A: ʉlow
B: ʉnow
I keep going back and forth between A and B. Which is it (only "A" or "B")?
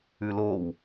A